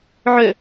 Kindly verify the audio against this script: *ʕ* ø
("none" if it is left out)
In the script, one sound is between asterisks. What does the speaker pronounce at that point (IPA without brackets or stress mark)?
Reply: ʕ